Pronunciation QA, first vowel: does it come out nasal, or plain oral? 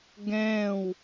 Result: nasal